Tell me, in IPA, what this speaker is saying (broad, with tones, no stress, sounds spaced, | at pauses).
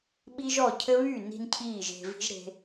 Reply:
ɓ i˦ ʒ ɔ˦˨ cʰ ɘ˦ β y˦˨ n i̤˧ n cʰ iː˦˨ ʒ e̤˧ v i̤˦ ʒ ɾ e̤˧